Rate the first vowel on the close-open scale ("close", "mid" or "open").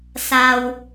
open